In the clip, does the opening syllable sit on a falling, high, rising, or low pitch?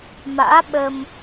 rising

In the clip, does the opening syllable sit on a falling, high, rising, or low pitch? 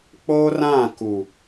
high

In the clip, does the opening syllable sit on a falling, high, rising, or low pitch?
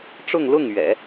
falling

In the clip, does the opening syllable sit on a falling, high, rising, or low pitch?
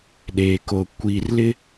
low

